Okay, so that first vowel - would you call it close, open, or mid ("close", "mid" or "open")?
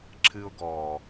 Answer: close